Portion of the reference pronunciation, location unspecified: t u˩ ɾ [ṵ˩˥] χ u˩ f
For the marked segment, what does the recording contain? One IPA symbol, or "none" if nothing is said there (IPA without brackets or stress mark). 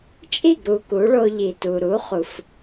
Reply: u˩˥